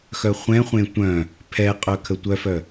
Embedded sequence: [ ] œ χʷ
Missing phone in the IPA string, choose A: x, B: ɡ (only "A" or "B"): A